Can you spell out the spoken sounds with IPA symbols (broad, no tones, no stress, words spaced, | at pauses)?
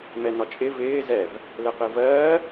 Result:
mɛnɒt͡ʃʼɪ vɪː zɛv | lɛqɪːvɜː